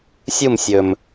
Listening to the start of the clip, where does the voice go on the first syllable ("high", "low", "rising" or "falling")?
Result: falling